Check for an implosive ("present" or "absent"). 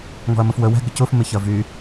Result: absent